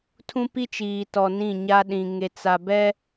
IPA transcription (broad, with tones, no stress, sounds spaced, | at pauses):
tʰ ũ˦ p i˦ t͡ʃ iː˨ t ɔ˨ n ĩ˦˨ ɲ a˦ ɗ ĩ˨ ŋ e˨ t͡s a˨ b ɛ˦